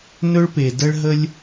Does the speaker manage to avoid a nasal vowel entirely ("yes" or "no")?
yes